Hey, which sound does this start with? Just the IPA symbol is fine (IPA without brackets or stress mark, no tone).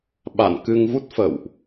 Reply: ɓ